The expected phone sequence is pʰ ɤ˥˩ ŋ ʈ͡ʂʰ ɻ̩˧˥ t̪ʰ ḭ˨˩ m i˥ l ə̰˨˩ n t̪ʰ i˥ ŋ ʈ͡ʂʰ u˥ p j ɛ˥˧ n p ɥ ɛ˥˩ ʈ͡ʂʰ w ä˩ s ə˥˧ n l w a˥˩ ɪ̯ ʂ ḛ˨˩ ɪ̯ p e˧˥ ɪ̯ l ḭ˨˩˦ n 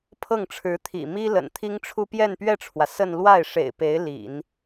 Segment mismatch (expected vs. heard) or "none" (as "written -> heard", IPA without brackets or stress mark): none